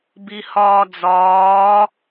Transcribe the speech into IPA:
bihɒːd͡zɒː

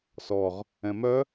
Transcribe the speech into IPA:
sɔʁ | ɛ̃mœ

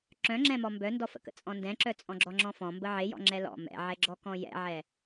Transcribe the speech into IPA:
ǁœ̃ŋ͡ǁɛ̃mɔ mbœndɔfə̰kə̰ t͡sʼɔ̃ndɛ̃ǁœ t͡sʼɔ̃ɡ͡ǁɔŋ͡ǁɔ̃fɔ̃ mbəʕejɔ̰ ŋ͡ǁɛlɔ̰ mɛ̰ʕɛɡ͡ǁɔ kɔ̃jɛ̰ʕɛ

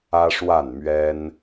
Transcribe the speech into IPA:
ä˦ʂwa˥˨nmɥɛ˦n

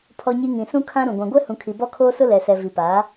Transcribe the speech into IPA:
pʰɔ˨ɲi˨ ŋĩ˨sũ˦ kʰã˦ɾũ˨ ɡʷã˨ɡʷɛ˦hũ˨kʰi˨ bɔ˦kʰoː˦sʊ˦ lɛ˨sɛ˨ vi˨paː˨˦

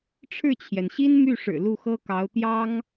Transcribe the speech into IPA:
ʈ͡ʂʰɻ̩˥˩t͡ɕʰjɛ˩nɕi˥n my˥˩ʂɻ̩˨˩ lu˥˩xɤ˥kɑ˧˥ʊ̯ t̪jɑ˥ŋ

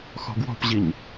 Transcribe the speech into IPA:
xɔ̤ɡwɔ̤pʑiɲ

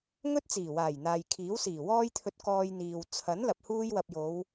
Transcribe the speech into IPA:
ŋɵ˥t̚t͡siː˨˩waː˨˩j n̪aː˨jkʰiː˨˥wsiː˨˩ wɔː˥jt̪ʰɵ˧t̚ kɔː˧jn̪iː˨w t͡sʰɐ˨˥nlɐ˨p̚ huː˧jwɐ˨p̚jo˨˧w

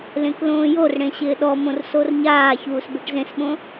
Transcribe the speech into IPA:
lẽklõːjorɽẽ ɕɪːɗɔmõr sorɲaːçuːs beʈzẽsɓõ

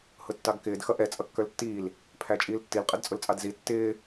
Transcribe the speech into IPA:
hʊtːɑɡkɪːd xʌʔɛ t͡sʼʌkːə˞ltːiːl | pʰæt͡ʃʼiːltːil qʼədt͡sʼʊlt͡sʼɑdzi tːɪː

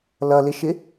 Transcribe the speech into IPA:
lʌlɪʃɪ

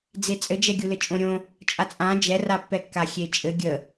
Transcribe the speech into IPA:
d͡zet͡sʼɘd͡ʒɛ ɡʲulɘt͡ʃʼõɾʲõ | t͡ʃʼat͡sʼã d͡ʒɛrapːɛkːa xʲet͡ʃʼɘ ɡʲə

